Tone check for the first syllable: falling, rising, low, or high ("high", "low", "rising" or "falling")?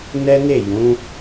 high